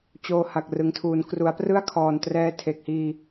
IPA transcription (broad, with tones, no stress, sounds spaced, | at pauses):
t͡ɕ oː˧ h a˨˩ k̚ r ɯ˩˦ ŋ tʰ uː˩˦ n k r u˩˦ a̯ p r ɯ˥˩ a̯ kʰ ɔː˨˩ n t r ɛː˧ tʰ e˨˩ k̚ h iː˧